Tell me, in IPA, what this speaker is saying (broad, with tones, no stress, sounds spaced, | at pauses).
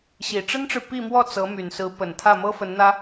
ɕ i˨˩ ʈ͡ʂ ə˥ n ʈ͡ʂ ɻ̩˨ p i˥˧ m w ɔ˥˩ t͡s ɤ˧˥ m y˨˩ n s ɹ̩˧˥ p ə˨˩ n t̪ʰ ä˥˩ m ɤ˥ f ə˧˥ n n̪ ä˥